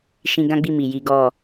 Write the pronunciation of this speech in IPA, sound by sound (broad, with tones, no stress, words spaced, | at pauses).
ʃĩ˧ɡã˦ɡ͡bi˦˨ mi˨ji˨˦ ɡɔ˦˨